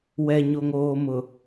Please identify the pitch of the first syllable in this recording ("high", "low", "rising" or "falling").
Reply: low